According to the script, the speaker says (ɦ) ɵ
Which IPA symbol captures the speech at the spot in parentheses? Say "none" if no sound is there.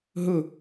ɦ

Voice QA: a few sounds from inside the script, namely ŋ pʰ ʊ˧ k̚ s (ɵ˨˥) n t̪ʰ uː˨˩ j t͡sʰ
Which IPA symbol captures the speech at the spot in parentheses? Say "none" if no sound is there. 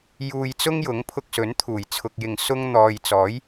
ɵ˨˥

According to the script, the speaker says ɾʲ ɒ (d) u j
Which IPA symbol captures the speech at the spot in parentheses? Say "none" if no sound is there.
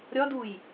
d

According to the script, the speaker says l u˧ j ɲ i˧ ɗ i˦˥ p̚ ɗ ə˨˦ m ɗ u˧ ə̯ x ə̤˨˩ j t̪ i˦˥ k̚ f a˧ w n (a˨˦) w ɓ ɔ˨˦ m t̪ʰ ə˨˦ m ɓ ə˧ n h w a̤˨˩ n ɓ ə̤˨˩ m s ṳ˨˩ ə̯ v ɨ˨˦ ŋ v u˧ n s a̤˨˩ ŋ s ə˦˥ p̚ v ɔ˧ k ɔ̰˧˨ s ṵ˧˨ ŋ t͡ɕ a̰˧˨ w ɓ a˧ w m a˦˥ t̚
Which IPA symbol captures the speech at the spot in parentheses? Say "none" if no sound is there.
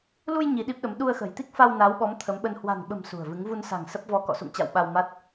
a˨˦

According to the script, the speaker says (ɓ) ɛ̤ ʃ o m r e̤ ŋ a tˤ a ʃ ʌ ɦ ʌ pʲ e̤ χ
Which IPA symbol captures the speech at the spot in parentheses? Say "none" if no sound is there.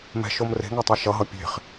m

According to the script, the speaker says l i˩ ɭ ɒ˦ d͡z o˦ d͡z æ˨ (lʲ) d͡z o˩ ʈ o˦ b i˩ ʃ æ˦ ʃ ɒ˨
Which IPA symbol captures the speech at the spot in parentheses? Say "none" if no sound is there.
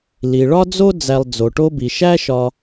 lˠ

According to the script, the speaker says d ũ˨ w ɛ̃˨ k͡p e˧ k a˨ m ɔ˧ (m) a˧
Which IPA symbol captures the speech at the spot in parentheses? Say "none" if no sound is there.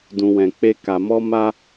m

